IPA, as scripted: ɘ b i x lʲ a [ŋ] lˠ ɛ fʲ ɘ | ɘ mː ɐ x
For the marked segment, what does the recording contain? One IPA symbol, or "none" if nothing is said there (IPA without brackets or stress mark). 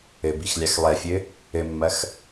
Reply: x